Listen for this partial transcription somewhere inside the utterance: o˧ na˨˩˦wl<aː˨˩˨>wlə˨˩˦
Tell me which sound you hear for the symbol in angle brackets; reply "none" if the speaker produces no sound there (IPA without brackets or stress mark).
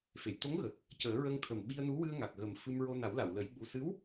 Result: a˨˩˨